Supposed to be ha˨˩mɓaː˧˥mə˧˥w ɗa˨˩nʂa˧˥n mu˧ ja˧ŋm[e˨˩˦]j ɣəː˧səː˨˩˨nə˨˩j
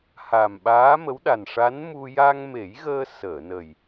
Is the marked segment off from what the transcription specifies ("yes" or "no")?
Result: no